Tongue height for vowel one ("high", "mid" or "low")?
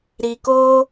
high